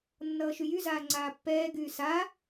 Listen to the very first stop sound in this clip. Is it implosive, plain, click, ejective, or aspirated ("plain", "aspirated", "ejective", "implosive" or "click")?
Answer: click